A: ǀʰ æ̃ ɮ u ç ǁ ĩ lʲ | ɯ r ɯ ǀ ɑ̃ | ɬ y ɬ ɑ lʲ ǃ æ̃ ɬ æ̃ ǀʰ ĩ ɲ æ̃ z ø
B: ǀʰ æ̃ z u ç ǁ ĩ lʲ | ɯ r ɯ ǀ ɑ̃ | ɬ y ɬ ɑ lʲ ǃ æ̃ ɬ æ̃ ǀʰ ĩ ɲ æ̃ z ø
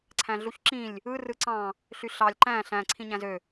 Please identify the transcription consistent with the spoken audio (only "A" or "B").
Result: A